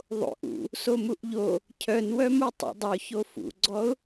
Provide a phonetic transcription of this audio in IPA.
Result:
ðˤ o̰ ʔ ṵ | s o m u ʔ ʎ o | cʰ œ n w œ m u tˤ ṵ dˤ o ç o f ṵ ɡ͡ǀ ɔ ʊ̯

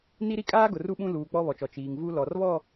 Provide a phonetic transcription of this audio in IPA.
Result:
n i˦ ɾ i˦ kʼ aː˦ ɡ ʊ˨ r u˦ ɓ ũ˦ l uː˨ k͡p ɔ˦ β ɔ˨ t͡ʃ ɔ˨ t͡ʃ iː˨ ŋ v u˦ l ɔ˨ r β ɔ˦˨

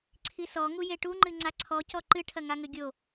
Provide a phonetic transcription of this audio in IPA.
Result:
ǀʰ i s ɔ ŋ u j e ʈ u ŋ͡ǃ ɨ ŋ͡ǀ a ǀʰ ɔ c ɔ ǃ ɨ ʈʰ ɐ ŋ a ŋ ɘ ɡʲ o

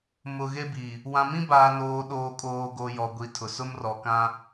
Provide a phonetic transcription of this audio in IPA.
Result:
m ʊ˨ ɣ e˦ b i˨ | w ã˨ m ĩ˦ b aː˨ n oː˨ ɗ oː˨ kʼ oː˨ ɡ o˨ j ɔ˨ ɡʷ i˨ tʰ ʊ˨ s ʊ˦ m r ɔ˨ k ã˦

